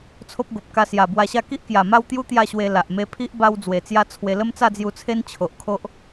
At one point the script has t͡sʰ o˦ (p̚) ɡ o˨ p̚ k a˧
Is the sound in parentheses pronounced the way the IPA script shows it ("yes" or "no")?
yes